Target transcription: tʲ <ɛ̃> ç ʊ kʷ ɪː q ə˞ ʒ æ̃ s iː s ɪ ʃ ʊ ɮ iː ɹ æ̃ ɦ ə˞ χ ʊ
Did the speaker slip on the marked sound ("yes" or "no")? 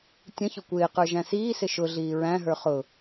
yes